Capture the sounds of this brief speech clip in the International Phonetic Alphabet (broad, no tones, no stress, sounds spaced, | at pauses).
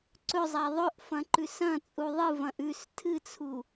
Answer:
ǀ ɵ zˤ a ðˤ ɵ ʔ f ɐ̃ ǃ ʉ s ɐ̃ t͡sʼ u ðˤ ɨ v ɐ̃ ʔ ʉ s tʰ ɨ t͡sʰ u